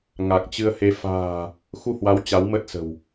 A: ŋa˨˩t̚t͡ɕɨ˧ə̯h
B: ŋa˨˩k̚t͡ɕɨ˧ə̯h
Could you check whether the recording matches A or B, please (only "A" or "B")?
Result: B